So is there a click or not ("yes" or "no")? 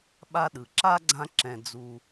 yes